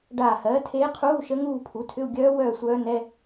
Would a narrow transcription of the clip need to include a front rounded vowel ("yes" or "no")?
yes